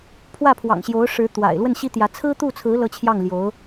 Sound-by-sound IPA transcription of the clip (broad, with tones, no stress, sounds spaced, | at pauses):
pʰ w ä˥˩ pʰ w ɑ̰˨˩ ŋ ɕ j o˧˥ ʊ̯ ʂ ɻ̩˧˥ t̪ w a̰˨˩ ɪ̯ l w ə˥˩ n ɕ i˥ t̪ j ä˧˥ t͡sʰ ɹ̩˥ t̪ u˥˩ t͡sʰ ɹ̩˧˥ l ɤ˥ t͡ɕʰ j ɑ˥˩ ŋ l j o˧˥ ʊ̯